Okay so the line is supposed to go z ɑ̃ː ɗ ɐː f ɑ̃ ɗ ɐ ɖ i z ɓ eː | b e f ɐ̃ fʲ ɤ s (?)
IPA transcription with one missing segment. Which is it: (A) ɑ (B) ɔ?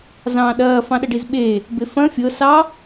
A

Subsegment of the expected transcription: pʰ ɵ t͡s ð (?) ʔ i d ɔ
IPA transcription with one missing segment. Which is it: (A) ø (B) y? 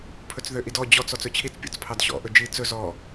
A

